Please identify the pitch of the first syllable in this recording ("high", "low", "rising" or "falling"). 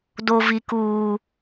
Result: high